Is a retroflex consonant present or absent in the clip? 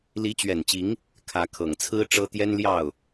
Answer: present